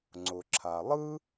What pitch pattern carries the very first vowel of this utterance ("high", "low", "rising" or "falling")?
low